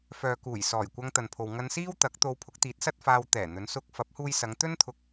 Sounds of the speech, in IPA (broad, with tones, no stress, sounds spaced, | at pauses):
f œː˨ k uː˨˩ j s ɔː˨˩ j kʷ ɐ˧ ŋ t̪ ɐ˨ n pʰ o˨ w ŋ ɐ˧ n s iː˥ w t̪ ɐ˨˥ k̚ t̪ o˧ w pʰ ʊ˨˥ k̚ t̪ iː˨˥ t̚ s ɐ˥ t̚ f aː˧ w t̪ ɛː˨˩ n̪ ɵ˨˧ n s ʊ˥ k̚ f ɐ˨˥ p̚ h uː˧ j s ɐ˨˧ ŋ t̪ ɵ˥ n t̪ʰ ʊ˧ k̚